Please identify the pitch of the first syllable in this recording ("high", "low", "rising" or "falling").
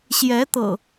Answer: rising